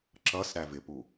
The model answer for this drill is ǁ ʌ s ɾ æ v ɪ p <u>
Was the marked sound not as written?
no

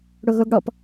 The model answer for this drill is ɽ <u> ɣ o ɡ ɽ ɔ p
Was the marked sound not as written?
yes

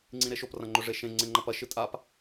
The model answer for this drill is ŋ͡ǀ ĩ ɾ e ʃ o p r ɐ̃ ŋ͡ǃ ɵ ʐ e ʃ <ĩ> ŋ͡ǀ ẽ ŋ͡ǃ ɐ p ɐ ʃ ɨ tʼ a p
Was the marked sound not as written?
yes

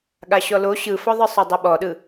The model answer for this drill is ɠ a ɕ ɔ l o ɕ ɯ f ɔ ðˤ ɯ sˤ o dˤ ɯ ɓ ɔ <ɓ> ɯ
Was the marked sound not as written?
yes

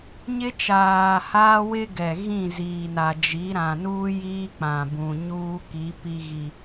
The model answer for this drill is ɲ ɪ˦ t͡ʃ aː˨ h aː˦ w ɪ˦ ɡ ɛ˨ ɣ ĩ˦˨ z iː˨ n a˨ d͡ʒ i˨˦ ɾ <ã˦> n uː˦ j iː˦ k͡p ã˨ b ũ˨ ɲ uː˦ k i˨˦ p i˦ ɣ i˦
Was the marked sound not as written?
yes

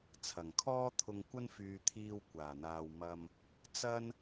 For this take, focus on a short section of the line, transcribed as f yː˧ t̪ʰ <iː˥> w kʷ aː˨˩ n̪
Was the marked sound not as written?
yes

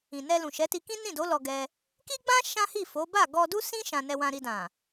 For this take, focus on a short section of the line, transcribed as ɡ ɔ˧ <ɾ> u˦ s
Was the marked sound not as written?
yes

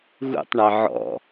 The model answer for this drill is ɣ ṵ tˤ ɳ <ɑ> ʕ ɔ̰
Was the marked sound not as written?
no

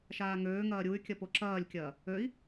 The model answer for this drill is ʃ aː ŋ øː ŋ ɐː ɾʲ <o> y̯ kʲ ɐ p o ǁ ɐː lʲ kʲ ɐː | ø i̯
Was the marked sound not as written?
yes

